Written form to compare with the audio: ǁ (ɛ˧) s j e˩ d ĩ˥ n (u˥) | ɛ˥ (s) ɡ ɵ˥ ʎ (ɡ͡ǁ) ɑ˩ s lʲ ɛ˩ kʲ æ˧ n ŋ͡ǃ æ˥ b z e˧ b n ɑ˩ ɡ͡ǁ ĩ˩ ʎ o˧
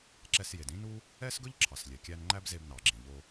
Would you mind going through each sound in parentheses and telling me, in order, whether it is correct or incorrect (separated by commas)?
correct, correct, correct, incorrect